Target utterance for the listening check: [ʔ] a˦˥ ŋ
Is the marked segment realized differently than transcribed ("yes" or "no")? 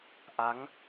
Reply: no